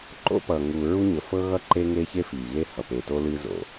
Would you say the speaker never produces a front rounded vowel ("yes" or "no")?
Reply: yes